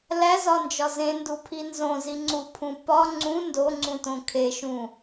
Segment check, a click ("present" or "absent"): present